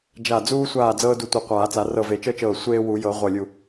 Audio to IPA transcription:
d͡ʒ a˧˩ d͡z uː˦ sʷ aː˧˩ d͡z ɤː˦ d u˧˩ tʷ e˧˩ qʷ aː˨˩˦ t͡s a˨˩˦ r ɤ˧˩ v e˨˩˦ t͡ʃ ɤ˦ t͡ʃ ɤː˧˩ sʷ eː˦ w u˨˩˦ j ɤ˨˩˦ ʁʷ ɤ˧˩ lʲ u˧˩

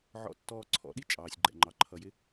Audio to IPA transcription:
ʕ ɔ̰˨ tː ɔː˨ ǀʰ ɔ̰˨ ɗ i˦ t͡ʃʼ ɑː˨ sʲ ɡ͡ǃ ɛ̰˨ ŋ͡ǃ ɑ˨ ǃʰ ʌ˨ j ɪ˦

